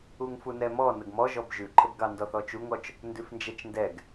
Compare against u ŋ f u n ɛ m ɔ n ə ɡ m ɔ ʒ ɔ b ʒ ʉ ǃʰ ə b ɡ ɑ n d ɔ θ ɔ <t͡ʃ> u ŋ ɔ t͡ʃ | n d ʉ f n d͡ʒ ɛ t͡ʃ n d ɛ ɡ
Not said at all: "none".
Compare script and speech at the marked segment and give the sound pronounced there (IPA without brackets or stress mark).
t͡ʃ